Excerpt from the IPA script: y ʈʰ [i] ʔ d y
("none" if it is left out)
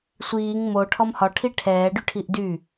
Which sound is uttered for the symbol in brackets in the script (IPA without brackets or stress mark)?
i